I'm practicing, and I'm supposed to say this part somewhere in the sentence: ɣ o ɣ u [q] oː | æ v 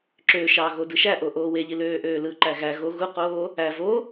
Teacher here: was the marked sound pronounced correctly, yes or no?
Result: yes